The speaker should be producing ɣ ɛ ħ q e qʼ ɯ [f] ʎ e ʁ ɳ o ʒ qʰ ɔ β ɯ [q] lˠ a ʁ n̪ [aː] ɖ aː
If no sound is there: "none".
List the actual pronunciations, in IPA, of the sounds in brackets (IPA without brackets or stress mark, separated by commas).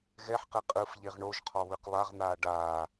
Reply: f, q, aː